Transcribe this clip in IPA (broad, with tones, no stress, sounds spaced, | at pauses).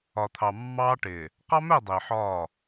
ɒ˨ t̪ʰ ɑ˨ mː ɑː˦ ʈ ɪː˨ | q ɑ˦ m ɛ˦˨ dˤ ɪː˨ ħ ɒː˦˨